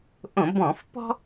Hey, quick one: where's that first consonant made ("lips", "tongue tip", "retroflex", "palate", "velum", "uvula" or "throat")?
throat